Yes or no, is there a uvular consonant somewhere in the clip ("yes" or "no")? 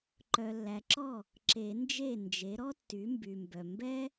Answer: no